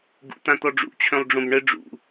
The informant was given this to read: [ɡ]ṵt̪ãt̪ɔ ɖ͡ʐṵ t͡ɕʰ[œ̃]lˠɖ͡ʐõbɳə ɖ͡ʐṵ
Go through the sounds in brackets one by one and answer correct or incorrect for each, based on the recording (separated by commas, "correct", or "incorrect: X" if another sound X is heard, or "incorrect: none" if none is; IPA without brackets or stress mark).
correct, correct